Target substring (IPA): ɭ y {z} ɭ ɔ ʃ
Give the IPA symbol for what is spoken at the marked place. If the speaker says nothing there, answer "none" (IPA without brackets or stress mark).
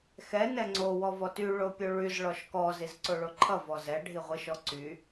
z